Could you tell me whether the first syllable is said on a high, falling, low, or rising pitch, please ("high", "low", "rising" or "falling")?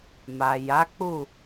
low